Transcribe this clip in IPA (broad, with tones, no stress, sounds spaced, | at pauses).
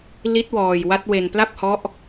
l i˦˥ t̚ w ɔː˧ j w a˦˥ t̚ w e˧ n p l a˥˩ p̚ h ɔ˦˥ ʔ